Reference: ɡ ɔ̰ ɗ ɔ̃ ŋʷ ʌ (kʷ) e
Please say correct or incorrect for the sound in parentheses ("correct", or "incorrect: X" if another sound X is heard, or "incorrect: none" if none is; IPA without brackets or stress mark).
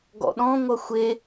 incorrect: xʷ